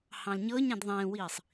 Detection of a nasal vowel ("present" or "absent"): present